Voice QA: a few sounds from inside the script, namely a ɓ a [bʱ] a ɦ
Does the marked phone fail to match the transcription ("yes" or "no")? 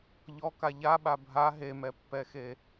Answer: no